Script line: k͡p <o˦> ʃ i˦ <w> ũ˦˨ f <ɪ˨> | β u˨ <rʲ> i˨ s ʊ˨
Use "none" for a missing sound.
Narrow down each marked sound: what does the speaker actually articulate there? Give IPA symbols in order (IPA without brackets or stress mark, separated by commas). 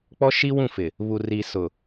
ɔ˦, w, ɪ˨, r